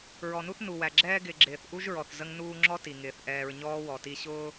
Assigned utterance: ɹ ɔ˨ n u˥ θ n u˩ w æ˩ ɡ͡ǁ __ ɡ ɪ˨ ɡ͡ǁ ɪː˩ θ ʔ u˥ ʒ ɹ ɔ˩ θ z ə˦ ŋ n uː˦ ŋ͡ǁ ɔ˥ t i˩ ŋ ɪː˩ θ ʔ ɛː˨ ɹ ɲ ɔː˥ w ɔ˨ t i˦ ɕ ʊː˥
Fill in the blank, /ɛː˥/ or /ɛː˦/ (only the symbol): ɛː˦